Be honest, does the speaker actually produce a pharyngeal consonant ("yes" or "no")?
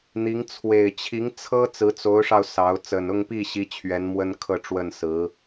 no